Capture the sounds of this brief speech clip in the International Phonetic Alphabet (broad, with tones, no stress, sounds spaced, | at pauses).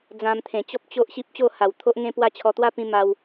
d͡z ã˧ m t̪ʰ ẽ˨˩ t͡ɕ ɔ˦ p̚ t͡ɕ o˦ ʔ ɕ i˦ p̚ t͡ɕ o˥˧ h a˨˩ w t̪ʰ o˦ ʔ ŋ ẽ˦ p w a˥˧ t͡ɕʰ ɔ˧ t̪ w a˥˧ p ĩ˧ m a˧ w